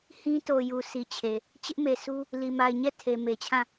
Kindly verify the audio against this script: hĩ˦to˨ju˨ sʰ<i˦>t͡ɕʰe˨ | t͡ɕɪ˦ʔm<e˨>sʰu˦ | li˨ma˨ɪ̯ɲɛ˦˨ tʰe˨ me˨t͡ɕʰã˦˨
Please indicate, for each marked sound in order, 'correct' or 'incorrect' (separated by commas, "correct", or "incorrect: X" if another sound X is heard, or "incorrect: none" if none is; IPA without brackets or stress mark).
incorrect: i˨, correct